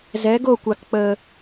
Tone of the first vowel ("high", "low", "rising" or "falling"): rising